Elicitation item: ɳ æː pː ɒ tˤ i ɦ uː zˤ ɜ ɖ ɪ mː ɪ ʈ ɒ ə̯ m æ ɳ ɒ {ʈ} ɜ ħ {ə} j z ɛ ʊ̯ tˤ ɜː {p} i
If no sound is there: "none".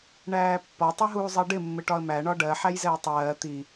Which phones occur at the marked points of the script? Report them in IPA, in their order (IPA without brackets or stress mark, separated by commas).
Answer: ɖ, æ, t̪